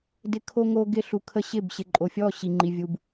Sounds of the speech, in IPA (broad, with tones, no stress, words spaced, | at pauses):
dɪ˦ kʰo˦ŋo˦ ɡɪ˦ɬu˨kʰə˦ ɕɪ˦˨bɕɪ˨ǃʼo˨fʲɔ˦˨ ɕi˨ŋ͡ǃi˨vʲu˨b